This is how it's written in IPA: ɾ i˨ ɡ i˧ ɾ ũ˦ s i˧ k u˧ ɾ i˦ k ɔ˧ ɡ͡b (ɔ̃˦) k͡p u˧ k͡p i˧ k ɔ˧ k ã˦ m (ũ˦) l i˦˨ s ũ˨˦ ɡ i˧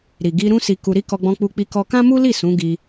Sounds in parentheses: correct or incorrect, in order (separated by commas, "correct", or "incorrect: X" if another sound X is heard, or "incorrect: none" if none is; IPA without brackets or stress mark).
incorrect: ɔ̃˧, incorrect: u˦